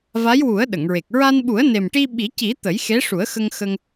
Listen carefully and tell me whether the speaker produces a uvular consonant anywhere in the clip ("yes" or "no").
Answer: no